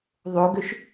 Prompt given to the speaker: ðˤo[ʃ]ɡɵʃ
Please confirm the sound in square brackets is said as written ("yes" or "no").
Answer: no